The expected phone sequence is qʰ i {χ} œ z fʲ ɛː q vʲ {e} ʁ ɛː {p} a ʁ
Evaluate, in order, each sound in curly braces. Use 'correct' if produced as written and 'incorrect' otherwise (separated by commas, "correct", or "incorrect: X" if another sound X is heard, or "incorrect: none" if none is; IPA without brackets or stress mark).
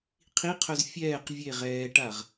incorrect: qʰ, correct, incorrect: ʈ